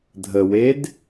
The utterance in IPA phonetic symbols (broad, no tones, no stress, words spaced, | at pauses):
dʱəwed